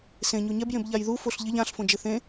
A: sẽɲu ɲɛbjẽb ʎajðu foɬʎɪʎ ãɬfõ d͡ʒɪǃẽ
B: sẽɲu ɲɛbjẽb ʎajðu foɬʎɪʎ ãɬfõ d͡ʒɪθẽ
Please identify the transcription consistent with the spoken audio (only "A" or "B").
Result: B